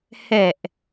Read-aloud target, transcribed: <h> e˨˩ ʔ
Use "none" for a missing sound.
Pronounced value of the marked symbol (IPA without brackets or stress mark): h